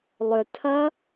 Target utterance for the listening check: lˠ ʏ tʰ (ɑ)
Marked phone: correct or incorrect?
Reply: incorrect